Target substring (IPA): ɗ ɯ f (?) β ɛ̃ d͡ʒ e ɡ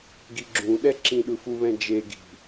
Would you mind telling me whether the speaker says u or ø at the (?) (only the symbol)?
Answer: u